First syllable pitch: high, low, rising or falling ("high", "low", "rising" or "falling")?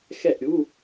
falling